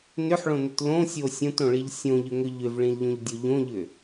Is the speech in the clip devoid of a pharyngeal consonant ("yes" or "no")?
no